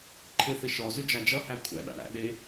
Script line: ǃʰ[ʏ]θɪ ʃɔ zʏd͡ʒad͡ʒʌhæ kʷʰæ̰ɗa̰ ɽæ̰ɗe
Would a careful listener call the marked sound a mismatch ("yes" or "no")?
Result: yes